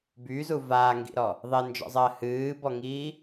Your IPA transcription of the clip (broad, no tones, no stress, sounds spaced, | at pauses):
b y z u v aː ŋ ɡ ḭ ɾ ɔ | ðˤ e n d͡ʒ ɔ̰ zˤ ɜ h ɨː b ɔ ŋ iː